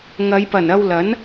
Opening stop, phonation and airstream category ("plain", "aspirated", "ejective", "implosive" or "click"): plain